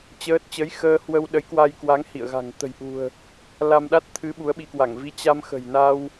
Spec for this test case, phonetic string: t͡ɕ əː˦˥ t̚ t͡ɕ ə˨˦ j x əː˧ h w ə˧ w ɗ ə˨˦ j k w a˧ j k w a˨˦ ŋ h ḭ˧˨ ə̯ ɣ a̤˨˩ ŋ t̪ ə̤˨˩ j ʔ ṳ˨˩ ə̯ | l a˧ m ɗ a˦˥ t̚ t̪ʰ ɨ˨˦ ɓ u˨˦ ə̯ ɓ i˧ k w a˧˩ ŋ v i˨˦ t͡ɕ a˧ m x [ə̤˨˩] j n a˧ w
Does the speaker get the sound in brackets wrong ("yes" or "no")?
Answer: no